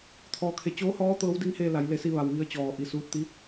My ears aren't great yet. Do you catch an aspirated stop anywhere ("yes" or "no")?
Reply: yes